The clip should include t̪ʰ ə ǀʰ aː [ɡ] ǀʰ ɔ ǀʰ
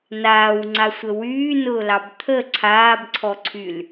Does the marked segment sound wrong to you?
yes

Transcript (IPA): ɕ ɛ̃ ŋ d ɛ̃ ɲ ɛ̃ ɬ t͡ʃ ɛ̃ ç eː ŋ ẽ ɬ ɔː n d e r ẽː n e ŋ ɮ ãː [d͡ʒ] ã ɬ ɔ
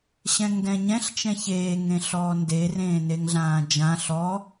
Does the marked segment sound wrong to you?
no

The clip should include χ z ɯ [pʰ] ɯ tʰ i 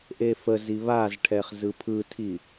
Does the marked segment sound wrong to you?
no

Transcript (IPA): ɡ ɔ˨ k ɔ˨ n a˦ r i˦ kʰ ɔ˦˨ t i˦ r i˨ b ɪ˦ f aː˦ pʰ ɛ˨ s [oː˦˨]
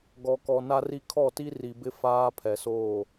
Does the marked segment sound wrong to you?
no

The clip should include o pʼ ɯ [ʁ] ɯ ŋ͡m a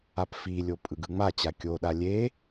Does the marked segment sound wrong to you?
yes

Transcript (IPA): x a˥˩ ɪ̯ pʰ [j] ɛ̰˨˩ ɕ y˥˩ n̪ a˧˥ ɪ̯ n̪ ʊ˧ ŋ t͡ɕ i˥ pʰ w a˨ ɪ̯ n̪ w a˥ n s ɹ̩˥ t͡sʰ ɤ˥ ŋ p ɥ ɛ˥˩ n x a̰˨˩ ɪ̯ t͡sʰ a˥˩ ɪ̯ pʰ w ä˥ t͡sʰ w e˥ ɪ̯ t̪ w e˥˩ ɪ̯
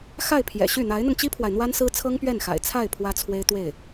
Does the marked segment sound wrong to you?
no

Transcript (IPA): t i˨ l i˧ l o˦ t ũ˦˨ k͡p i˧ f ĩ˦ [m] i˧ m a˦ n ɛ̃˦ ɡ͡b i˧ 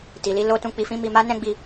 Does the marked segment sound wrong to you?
no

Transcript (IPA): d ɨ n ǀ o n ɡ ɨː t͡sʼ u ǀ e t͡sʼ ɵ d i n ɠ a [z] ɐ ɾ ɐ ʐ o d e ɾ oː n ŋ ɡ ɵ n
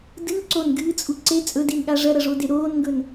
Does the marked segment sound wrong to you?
yes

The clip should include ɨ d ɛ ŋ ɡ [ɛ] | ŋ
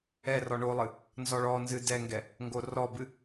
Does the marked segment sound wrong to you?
no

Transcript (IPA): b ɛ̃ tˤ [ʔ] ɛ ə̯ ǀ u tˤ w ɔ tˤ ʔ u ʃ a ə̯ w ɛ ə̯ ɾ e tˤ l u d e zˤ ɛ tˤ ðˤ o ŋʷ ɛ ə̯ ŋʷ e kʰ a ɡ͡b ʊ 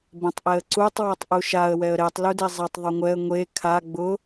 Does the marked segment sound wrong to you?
no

